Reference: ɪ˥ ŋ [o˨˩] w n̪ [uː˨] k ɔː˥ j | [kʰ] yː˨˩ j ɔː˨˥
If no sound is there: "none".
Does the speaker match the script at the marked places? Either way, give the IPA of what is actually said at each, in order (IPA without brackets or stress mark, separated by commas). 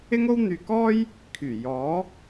o˥, yː˨, kʰ